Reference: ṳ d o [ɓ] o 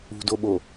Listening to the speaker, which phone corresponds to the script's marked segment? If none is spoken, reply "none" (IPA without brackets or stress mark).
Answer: ɓ